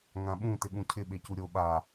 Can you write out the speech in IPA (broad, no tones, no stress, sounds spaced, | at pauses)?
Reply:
ŋ ã ɓ ũ t ɪ ɠ ũ cʰ ɪ ɓ e c u ɾʲ o ɓ a